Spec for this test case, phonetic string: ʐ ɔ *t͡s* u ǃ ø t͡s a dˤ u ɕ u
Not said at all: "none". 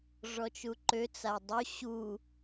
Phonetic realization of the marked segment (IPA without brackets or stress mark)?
t͡ʃ